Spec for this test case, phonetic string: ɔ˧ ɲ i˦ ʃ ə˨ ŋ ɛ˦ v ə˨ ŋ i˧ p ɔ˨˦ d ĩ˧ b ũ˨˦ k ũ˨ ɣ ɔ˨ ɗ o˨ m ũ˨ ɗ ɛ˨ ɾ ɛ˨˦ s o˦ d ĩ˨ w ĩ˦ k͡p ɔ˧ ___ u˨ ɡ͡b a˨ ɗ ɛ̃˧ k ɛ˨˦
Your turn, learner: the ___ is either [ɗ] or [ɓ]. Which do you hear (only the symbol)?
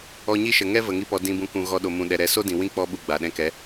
ɓ